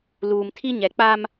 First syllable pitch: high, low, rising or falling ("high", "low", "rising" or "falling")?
low